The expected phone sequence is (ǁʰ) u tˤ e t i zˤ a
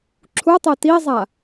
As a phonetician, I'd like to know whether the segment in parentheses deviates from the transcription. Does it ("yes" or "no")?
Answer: no